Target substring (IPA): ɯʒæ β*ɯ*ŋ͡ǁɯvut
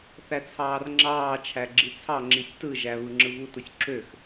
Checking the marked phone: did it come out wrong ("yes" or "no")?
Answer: no